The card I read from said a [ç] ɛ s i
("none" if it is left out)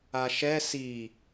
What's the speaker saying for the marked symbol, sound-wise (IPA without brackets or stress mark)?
ʃ